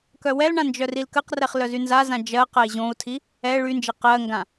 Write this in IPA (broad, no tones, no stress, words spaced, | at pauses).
kœwɛlɳã nd͡ʒœrilkəqrɛχ lœzynzazã d͡ʒɜ qɜi̯ʑõu̯tʰi | ɛ ɭynd͡ʒe qɜŋɡã